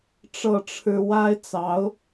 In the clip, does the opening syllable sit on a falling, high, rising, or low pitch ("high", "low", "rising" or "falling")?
falling